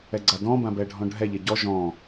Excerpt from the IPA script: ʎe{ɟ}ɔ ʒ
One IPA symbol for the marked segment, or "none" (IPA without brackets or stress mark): ɟ